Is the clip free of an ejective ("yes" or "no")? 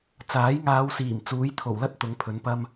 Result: yes